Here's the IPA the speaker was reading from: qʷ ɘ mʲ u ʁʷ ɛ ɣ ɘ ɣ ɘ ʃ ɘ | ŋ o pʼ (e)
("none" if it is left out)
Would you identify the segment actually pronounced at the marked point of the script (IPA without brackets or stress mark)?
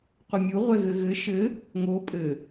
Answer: ɘ